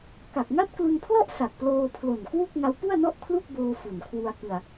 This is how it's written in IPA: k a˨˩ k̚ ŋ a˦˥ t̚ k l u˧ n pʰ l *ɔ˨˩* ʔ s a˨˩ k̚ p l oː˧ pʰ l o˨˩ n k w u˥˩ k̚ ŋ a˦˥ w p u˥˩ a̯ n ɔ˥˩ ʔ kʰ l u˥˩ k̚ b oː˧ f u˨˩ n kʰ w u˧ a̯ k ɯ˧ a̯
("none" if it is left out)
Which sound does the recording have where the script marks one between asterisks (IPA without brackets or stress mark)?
ɔ˥˩